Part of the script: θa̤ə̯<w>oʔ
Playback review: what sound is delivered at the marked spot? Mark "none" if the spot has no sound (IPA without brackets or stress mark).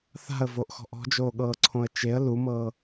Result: v